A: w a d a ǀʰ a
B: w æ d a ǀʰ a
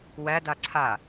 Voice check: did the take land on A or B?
B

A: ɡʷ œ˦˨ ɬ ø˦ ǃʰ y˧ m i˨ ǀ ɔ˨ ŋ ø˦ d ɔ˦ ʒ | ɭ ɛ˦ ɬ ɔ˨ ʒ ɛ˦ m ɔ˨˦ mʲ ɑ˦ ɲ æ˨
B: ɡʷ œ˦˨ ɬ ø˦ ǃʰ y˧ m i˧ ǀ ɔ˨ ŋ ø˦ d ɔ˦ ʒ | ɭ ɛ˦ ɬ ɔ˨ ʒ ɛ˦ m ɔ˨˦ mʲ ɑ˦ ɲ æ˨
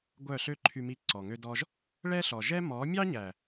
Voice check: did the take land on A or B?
B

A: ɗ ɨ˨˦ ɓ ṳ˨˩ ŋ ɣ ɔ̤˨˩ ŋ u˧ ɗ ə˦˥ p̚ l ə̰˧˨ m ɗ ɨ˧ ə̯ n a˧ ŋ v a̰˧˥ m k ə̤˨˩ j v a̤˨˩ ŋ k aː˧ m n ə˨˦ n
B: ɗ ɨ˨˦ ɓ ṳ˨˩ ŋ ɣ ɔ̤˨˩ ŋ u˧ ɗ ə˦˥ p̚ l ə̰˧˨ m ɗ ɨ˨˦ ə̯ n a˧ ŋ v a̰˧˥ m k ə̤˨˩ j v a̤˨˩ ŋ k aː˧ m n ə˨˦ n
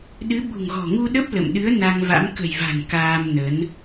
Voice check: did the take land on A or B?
B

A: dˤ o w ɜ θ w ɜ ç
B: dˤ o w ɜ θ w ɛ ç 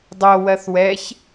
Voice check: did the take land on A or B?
B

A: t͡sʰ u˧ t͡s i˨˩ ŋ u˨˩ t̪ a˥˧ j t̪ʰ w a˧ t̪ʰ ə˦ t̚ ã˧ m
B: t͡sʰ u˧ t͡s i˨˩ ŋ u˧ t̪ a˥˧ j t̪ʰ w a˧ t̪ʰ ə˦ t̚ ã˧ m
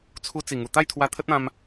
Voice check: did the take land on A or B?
A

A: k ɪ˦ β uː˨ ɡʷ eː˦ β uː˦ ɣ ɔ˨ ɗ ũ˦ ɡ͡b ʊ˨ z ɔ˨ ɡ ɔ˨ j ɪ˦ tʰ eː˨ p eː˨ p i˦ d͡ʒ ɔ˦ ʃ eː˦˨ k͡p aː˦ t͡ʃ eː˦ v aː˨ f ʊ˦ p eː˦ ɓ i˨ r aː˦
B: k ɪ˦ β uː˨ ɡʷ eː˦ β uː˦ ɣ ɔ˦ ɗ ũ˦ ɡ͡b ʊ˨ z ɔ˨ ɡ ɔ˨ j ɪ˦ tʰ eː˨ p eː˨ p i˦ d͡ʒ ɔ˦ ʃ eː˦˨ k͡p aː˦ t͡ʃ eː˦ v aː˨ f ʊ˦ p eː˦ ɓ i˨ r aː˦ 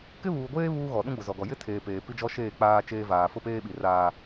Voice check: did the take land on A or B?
A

